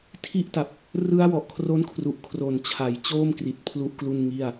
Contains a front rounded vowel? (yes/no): no